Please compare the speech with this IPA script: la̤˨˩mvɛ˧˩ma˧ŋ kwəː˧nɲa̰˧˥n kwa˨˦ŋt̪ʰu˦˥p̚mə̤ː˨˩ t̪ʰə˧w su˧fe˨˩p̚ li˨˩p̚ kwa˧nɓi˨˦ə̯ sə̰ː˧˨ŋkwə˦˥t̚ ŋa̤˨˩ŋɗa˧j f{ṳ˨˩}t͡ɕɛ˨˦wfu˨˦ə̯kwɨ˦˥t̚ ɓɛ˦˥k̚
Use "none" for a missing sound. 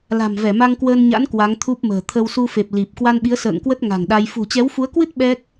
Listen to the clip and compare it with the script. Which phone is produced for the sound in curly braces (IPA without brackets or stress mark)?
ṳ˨˩